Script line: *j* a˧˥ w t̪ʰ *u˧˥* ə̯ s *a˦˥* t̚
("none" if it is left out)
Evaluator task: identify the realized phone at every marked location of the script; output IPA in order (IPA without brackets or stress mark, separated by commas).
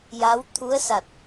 j, u˧˥, a˨˩